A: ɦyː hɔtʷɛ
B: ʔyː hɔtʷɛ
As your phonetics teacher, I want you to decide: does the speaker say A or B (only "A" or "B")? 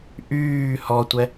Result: B